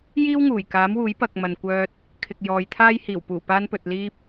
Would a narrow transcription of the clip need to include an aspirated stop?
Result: yes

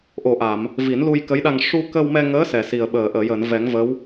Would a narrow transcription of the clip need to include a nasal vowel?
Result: no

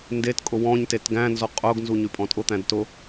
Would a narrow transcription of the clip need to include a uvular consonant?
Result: yes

